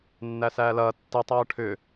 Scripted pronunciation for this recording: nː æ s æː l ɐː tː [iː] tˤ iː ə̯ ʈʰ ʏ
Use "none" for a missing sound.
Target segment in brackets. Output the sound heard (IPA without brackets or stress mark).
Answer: i